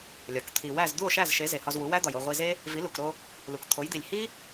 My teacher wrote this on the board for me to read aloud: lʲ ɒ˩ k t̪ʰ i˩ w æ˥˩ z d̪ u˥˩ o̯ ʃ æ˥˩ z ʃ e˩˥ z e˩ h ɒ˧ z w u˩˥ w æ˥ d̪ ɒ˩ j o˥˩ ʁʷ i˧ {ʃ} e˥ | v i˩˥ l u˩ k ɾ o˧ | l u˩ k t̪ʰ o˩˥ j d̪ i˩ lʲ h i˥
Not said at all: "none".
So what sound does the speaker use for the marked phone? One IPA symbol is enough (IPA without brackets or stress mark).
z